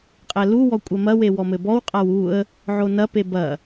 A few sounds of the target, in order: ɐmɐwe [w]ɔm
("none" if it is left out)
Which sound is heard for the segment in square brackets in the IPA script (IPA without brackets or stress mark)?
w